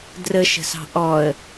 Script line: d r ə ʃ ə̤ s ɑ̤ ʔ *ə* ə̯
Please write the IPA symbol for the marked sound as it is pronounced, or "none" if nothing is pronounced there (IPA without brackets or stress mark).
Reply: ɔ